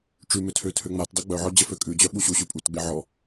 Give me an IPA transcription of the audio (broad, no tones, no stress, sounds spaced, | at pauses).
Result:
ʈ͡ʂ ʉ m ø tʰ ø tʰ ø ŋ͡m a t dˤ ø ɡ͡b œ ʕ ɔ d͡ʑ ə f ø kʼ ʉ d͡ʑ œ ɓ u ɕ u ɕ ʉ pʼ u t ɡ͡b e ʕ ɔ